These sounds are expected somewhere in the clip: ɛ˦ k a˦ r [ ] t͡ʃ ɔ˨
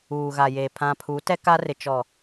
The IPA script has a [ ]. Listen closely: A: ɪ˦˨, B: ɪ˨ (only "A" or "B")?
B